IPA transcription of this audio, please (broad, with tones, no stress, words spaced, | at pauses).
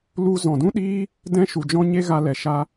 lu˧ zɔ̃˨dũ˦ɗiː˦ | dɛ̃˦ʃu˨d͡ʒɔ̃˦ɲe˦ ɣa˧lɛ˨ʃa˧